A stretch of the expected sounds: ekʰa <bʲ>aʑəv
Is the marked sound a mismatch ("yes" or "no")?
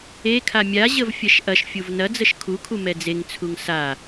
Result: yes